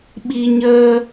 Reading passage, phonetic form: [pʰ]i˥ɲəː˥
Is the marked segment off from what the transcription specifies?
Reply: yes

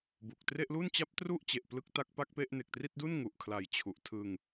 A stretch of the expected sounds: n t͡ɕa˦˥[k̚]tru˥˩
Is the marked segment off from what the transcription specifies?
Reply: yes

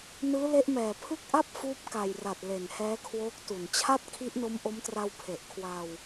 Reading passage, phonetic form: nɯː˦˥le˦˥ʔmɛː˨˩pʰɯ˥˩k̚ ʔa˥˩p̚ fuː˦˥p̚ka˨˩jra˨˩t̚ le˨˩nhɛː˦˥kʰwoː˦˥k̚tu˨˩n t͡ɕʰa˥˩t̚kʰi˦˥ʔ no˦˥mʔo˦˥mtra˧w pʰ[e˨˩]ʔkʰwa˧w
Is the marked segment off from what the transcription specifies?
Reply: no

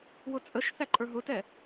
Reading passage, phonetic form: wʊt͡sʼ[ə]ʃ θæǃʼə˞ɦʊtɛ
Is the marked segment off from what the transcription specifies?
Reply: no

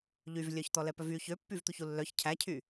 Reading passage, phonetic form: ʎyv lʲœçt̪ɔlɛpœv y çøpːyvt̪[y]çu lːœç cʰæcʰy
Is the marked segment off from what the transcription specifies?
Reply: yes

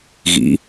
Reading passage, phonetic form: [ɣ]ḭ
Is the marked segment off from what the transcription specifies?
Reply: no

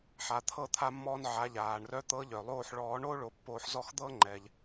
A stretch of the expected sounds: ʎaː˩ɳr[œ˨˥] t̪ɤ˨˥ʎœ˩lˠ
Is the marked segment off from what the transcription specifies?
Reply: no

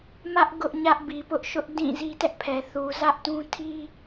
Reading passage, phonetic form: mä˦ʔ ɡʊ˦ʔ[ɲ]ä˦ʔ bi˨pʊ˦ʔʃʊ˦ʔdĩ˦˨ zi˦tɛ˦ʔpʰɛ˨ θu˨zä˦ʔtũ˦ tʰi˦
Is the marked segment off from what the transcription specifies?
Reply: no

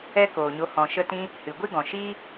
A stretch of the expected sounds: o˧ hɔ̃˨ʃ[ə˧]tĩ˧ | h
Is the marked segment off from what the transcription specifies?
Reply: no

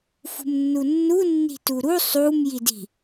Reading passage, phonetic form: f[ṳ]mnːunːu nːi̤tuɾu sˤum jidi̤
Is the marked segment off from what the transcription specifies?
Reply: no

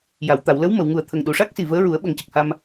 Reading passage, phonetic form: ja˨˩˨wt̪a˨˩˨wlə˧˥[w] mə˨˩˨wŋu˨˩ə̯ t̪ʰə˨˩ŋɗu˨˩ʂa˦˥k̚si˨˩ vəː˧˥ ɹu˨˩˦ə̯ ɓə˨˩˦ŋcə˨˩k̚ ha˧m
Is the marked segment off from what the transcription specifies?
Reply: no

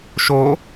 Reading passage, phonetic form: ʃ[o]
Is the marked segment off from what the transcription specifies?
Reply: no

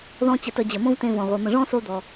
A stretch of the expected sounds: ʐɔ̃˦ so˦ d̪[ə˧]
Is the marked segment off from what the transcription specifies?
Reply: yes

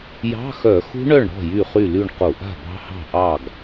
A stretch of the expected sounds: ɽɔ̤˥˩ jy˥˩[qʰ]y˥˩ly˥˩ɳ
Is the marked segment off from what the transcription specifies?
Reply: yes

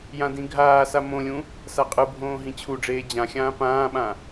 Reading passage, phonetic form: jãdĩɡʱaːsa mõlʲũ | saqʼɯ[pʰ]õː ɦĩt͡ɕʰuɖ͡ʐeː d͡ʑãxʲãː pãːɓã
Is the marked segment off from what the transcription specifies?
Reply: yes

